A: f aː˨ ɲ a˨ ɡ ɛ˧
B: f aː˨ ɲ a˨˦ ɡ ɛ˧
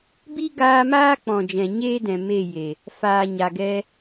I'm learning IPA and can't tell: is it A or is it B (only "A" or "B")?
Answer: A